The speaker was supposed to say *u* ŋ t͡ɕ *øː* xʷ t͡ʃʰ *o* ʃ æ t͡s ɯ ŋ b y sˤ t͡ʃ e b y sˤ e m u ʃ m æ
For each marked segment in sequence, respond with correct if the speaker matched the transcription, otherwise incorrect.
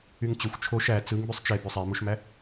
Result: incorrect: y, incorrect: ø, correct

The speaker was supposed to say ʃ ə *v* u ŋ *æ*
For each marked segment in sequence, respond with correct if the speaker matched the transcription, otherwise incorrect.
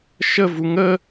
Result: correct, incorrect: ə

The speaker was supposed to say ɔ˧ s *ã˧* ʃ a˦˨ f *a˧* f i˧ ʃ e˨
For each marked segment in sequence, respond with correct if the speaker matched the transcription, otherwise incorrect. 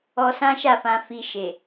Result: incorrect: ã˦, incorrect: ã˧

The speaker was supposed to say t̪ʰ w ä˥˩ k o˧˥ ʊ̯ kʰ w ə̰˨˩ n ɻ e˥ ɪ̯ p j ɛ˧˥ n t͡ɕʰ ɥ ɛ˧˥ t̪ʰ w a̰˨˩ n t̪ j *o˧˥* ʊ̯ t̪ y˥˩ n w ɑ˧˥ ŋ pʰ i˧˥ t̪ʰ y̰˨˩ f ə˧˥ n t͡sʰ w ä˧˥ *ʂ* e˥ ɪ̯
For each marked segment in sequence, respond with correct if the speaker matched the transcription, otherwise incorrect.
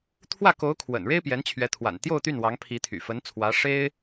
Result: incorrect: o˥˧, correct

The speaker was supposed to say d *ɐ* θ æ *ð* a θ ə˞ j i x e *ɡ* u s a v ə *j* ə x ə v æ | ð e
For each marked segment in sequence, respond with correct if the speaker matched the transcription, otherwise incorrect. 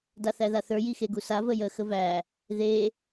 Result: incorrect: a, correct, correct, correct

